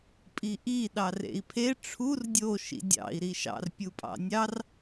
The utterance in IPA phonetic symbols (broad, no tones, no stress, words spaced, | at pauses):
pʼiʔi ɗɑrḛi̯pʰe ʈ͡ʂʰur dʲo ʃḭdʲɑ̰i̯ ɾiʃɑ̰r pʲupʼɑ̰nʲɑr